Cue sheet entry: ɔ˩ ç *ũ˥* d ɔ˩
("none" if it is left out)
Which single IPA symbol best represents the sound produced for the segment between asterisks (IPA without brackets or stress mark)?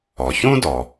ũ˥